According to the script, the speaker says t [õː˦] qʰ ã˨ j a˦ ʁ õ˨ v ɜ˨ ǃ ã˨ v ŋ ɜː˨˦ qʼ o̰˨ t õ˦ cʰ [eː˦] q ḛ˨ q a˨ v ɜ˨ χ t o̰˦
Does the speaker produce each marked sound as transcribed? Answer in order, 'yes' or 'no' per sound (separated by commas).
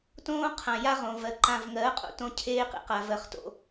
yes, yes